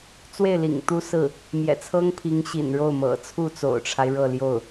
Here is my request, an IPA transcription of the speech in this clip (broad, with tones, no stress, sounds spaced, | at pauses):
t͡s w e˥˩ ɪ̯ l ḭ˨˩ ŋ t̪ u˥ s ɹ̩˥˩ | m j ɛ̰˨˩ t͡sʰ ɤ˥ ŋ pʰ i˧˥ ŋ ɕ ḭ˨˩ n ɻ o˥˩ ʊ̯ m ɤ̰˨˩ t͡sʰ u˥˩ t͡s o̰˨˩ ʊ̯ ʈ͡ʂʰ a˦ ɪ̯ ɻ ɤ˥˧ l j o˥˩ ʊ̯